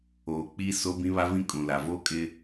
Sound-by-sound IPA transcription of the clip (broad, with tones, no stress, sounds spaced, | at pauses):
oː˨ k͡p i˦ s o˦ b ĩ˦ β a˦ v ĩ˦ kʼ ũ˨ l a˨ v o˦ kʼ ɪ˦